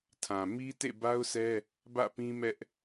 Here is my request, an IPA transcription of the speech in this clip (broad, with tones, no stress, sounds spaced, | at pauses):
tʰ ã˨ m i˦ t ḛ˦˨ b a˦ ʊ̯ sʰ ɛ˦ | b ä̰˦˨ p ĩ˦ m ɛ˦ ʔ